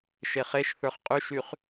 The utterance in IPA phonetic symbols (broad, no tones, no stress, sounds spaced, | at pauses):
ʃ e χ e ʃ θ ə˞ χ qʼ y ʃ y χ